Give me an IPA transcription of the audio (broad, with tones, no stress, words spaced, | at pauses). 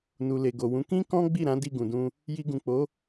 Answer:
nu˨le˨ɡo˨wũ˨˦ kĩ˦ kɔ̃˦ ɡ͡bi˦˨ɾã˨˦ di˦˨ɡũ˨dũ˧ | ji˧ɡũ˨k͡po˨˦